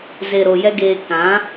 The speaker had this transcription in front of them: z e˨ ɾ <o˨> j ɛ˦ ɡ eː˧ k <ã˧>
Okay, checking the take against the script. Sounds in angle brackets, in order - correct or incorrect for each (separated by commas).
correct, incorrect